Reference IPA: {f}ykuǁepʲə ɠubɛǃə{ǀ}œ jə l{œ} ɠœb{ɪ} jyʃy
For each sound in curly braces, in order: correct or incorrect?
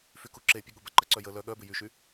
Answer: correct, correct, correct, correct

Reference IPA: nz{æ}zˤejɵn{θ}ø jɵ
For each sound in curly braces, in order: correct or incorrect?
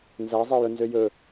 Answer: correct, incorrect: z

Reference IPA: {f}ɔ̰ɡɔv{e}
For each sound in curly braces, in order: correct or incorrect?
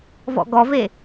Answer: incorrect: v, correct

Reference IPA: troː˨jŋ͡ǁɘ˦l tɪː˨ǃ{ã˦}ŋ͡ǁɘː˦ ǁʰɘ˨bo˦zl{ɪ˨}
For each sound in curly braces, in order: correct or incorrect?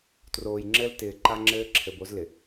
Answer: incorrect: a˦, correct

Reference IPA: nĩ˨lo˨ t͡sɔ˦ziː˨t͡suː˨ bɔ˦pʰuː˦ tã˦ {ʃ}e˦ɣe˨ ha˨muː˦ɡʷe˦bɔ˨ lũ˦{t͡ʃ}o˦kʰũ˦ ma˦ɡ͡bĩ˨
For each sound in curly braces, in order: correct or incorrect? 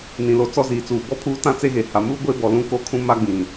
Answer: incorrect: t͡s, incorrect: k

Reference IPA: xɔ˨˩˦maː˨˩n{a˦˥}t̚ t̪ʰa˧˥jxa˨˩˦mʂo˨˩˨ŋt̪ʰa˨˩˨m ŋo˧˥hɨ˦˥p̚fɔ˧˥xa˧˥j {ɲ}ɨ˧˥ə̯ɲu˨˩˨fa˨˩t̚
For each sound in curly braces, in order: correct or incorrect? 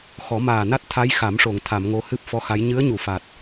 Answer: correct, correct

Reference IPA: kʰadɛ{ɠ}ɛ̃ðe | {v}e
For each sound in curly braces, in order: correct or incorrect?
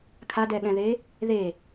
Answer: correct, incorrect: ð

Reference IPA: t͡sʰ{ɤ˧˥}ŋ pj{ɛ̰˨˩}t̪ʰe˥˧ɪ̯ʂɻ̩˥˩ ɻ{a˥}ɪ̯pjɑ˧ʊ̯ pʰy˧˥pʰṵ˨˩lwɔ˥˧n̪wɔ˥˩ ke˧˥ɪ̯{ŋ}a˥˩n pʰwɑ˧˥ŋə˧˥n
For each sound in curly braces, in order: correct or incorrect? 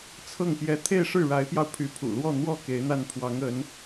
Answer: incorrect: ɤ˥˩, incorrect: ɛ˧˥, incorrect: a˧˥, incorrect: n̪

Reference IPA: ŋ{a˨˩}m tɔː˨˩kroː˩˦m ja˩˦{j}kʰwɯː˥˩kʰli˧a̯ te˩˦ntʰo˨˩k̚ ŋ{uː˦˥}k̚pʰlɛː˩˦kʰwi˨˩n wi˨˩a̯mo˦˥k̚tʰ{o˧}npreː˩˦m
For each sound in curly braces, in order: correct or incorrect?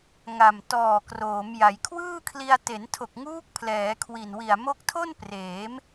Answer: correct, correct, correct, incorrect: o˥˩

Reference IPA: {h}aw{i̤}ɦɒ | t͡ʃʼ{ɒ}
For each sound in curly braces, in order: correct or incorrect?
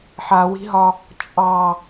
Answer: incorrect: ħ, correct, incorrect: ɑ

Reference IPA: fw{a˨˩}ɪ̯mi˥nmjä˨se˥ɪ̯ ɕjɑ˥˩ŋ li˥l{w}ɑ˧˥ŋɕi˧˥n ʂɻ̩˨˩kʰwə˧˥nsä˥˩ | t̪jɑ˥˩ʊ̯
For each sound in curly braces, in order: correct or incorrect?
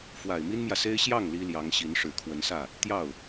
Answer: correct, incorrect: j

